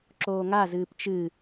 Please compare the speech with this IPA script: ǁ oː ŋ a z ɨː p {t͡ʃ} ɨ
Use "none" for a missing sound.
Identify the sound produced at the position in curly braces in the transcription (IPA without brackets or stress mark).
t͡ʃ